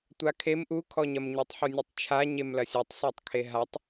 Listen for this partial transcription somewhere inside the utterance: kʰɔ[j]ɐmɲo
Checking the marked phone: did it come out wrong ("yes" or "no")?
yes